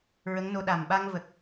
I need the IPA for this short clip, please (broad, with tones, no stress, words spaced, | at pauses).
ɹə˧˥ŋno˧ɗa˨˩m ɓa˧ŋvə˨˩k̚